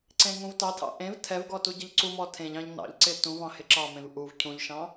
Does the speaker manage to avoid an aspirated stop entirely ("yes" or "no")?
no